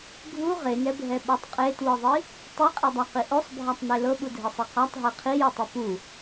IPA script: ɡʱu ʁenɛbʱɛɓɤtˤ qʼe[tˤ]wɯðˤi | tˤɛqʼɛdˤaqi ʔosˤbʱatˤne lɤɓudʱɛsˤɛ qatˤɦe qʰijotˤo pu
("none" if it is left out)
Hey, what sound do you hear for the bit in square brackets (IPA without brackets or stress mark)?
t